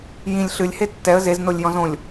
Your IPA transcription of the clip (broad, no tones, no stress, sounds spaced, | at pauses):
j ĩ lʲ ɬ ɨ lʲ h e tː ɛ ə̯ z e z n o lʲ j ɔ̃ z õ lʲ